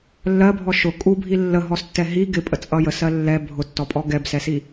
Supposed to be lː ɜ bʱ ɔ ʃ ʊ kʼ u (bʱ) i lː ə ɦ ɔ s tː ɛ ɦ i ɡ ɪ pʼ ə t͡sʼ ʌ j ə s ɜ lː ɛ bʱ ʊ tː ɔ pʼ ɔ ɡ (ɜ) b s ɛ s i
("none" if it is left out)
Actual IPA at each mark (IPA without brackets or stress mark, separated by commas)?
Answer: bʱ, ɛ